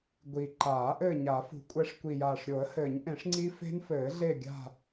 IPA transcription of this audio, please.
ɡʷi˨˩ ǃaː˨˩˦ ʔɘː˦˨ɲa˨˩˦fṳ˨˩ kʷʼɛ˦˨ʂ kʷi˨˩jaː˨˩ʂ ɾʲo˨˩˦ə̯hɘː˨˩˦ɲʔẽ˨˩˦ʂ ŋ͡ǀi˦˥fe̤˦˥n fɘː˨˩˦ɮe˦˨ɡʲa̤˦˨

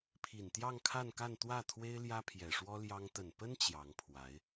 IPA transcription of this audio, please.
pʰi˨˩nt̪jɑ˥˧ŋkʰa˥˧nka˥˧n t̪wä˥˩t̪ʰwe˥ɪ̯ ljä˥pʰjɛ˨˩ʂwɔ˥ljɑ˥ŋ t̪ə˨˩npə˥n t͡ɕjɑ˧˥ŋpʰwa˧˥ɪ̯

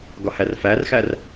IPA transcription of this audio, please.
ɡɒhærfærxær

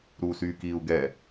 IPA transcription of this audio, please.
ɾuːsyːkiːu̯ɡɛ

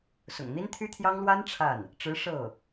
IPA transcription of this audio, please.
sʊ̰˨˩ŋn̪i˥nt̪ʰy˥t̪ʰjɑ˥ŋ lwa˥n ʈ͡ʂʰa˥˩n | ʈ͡ʂɻ̩˧˥ ʂɤ˥˩

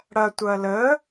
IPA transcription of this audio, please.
ɽɐtʷɐ lə

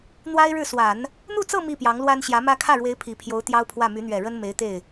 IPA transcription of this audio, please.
n̪wa˥ɪ̯ɻɻ̩˥˩ swa˨˩˦n | n̪u˥˧t͡sɤ˥˧ mi˥˩ pjɑ˧˥ŋlwa˥n ɕjä˧˥mä˥ kʰä˥˩ɻwe˧˥ɪ̯ pʰi˨˩pʰjo˧˥ʊ̯ t̪jɑ˥ʊ̯pʰwä˥˩ my˧˥n̪ɥɛ˨˩ ɻə˥nme˧˥ɪ̯t̪e˥˩ɪ̯

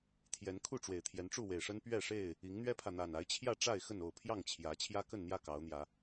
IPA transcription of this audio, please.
t̪ʰjɛ˨˦nkʰu˥˨ʈ͡ʂwe˨˩ɪ̯ t̪ʰjɛ˨˦nʈ͡ʂu˥˨we˨˩ɪ̯ʂə˦n pɥɛ˥˨ʂe˥˨ɪ̯ | i˨˦ŋn̪ɥɛ˦pʰä˨ n̪a˨˩na˨˦ɪ̯t͡ɕʰjä˥˨ʈ͡ʂa˥˨ɪ̯ xə˥˨no˥˨ʊ̯pʰjɑ˥˨ŋt͡ɕʰjä˨˦ t͡ɕʰjä˦kə˥˨nn̪jä˥˨ kɑ˨˦ʊ̯n̪jä˨˦

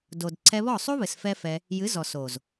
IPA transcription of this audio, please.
do˨d ǀʰɛ˧βɔ˦˨sˤu˦ βɘ˨sfɛ˦fɛ˧ | jɨ˨˦zɔ˨ so˨z

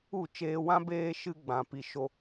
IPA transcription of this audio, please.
u˦˨t͡ʃeː˧wã˦ beː˦ʃɨ˦ɡ͡bã˨ pi˨ʃo˧

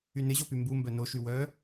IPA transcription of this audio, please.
ynɪʑopy mbumbœ noʃy wœ

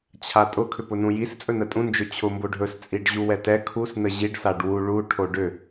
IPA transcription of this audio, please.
t͡ɕʰatʼʊ kʰʏpʊnũjis t͡sʼɵnətʼũ nd͡ʒɵt͡ɕʰʊ mboɖʱɵs t͡sʼiɖʑuwɛtɛ kʰus nəʑiɖ saɖwu ɭu ʈʰoɖʏ

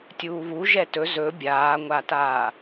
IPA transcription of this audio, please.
tʲuːβu ʒɛtɵ zɵ bʲaːŋʷataː

